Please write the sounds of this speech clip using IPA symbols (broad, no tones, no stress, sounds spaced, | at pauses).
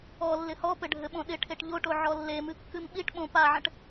ɔ lː ɪ h ɔ p ɘ ɖʱ ɘ ɓ õ ɗ ɪ ʈʰ e ʈ ʎ o ʈ o ʕ ɔ lː e m ɨ kː ɨ m ɓ i ʈ ɓ õ p a ʕ ə̃ ʈ